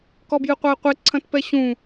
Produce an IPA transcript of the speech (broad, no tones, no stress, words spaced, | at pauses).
kɔbjɨqʷae̯qʷe ǀʰɐ̃tpɛɕũ